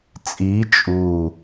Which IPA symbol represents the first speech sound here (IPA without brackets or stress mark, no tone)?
t͡sʼ